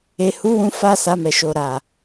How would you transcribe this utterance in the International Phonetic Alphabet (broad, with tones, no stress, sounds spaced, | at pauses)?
e˨ h u˨˦ w ũ˧ f a˧ s a˧ m ɛ˨ ʃ o˨ ɾ a˨